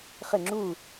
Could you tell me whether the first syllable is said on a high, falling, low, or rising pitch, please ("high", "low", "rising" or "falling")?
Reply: falling